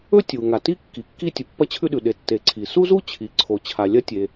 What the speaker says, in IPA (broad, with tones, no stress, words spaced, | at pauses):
ɵ˥ tʲu˩ ŋa˩ ti˥ kːi˩kːi˥ tʲu˩pːɐ˥t͡ɕʰʉ˥ɗʉ˩ ɗe˩tːe˩ ǀʰi˩ su˥zu˥t͡ɕʰi˩ǀʰo˩ t͡ɕʰa˩lʲɐ˥tʲe˩